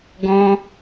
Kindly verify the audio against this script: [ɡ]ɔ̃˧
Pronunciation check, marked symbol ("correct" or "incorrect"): correct